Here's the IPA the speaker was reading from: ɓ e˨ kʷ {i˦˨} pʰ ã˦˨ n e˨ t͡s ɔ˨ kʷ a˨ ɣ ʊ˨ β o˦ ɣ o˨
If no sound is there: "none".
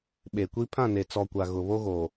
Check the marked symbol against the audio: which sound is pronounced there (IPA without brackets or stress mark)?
i˦